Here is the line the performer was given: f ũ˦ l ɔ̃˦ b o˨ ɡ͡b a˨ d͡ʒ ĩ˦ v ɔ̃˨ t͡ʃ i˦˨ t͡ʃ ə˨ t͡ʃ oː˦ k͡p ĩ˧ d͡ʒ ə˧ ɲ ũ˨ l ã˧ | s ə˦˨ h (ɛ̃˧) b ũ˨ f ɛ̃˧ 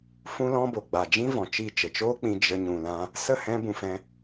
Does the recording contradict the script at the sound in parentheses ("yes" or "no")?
no